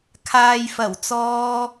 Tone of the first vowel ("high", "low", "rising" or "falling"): low